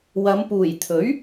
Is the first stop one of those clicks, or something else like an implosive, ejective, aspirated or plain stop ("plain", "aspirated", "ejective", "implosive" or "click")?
plain